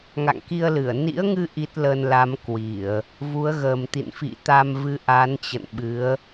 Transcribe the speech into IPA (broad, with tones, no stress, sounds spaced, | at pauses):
ŋ a̰˧˨ ŋ k i˧ ə̯ l ɨ˧˩ ə̯ n ḭ˧˥ ə̯ ŋ ɨ˧ ʔ i˦˥ t̚ l ə˧ n l a˨˦ m k w i˧˩˨ ə̯ | v u˨˦ ə̯ ɣ əː˨˩ m t̪ ḭ˧˨ n f ḭ˧˨ t̪ a˧ m v ɨ˧ ʔ a˨˦ n t͡ɕ ə̰˧˨ n ɓ ɨ˨˦ ə̯